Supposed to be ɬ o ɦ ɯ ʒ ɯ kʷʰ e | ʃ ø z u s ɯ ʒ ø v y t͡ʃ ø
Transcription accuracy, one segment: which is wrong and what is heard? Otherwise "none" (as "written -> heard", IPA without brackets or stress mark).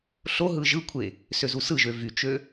ʃ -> s